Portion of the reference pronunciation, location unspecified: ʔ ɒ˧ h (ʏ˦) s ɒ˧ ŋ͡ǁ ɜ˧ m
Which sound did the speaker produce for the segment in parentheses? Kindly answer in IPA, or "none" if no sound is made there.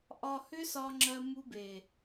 ʏ˦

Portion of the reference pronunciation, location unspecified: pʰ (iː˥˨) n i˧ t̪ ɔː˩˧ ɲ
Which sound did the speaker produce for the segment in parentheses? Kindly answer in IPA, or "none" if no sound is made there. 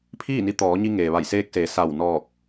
iː˥˨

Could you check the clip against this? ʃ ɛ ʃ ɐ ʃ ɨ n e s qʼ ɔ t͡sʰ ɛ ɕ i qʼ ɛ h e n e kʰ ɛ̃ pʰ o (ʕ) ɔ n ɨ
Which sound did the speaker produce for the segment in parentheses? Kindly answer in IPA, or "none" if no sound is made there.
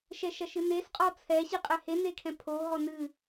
ɦ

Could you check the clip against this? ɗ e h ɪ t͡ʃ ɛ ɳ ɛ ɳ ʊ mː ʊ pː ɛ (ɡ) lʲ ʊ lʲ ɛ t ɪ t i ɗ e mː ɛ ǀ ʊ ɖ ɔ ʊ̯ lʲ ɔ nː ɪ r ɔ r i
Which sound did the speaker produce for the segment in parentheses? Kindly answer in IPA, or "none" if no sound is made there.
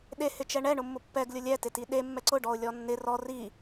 ɡ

